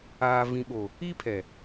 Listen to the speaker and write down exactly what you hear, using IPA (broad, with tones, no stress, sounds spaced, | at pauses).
aː˨ v ĩ˨ ɓ o˨ | i˦ pʰ ɛ˨